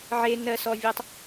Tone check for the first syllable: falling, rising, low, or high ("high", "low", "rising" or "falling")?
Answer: low